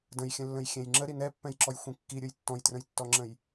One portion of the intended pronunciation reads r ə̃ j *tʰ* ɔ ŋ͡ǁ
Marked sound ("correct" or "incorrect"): incorrect